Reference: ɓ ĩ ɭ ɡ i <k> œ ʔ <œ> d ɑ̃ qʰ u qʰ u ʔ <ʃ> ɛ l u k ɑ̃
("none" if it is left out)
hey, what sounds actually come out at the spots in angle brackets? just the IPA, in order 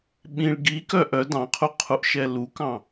k, œ, ʃ

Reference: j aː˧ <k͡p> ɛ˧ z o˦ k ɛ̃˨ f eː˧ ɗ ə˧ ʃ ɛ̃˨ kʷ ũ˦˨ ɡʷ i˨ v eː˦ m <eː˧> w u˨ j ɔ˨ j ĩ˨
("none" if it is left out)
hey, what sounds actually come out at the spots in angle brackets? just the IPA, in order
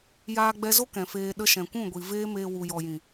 ɡ͡b, eː˧

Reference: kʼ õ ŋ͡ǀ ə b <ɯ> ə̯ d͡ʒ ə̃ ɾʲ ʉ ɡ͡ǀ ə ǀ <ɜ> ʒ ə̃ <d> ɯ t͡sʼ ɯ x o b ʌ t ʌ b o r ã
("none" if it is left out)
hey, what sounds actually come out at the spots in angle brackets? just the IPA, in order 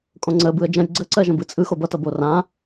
ɯ, ɜ, b

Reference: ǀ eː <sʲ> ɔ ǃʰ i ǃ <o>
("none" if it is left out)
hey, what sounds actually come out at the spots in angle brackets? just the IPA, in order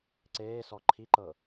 s, ɤ

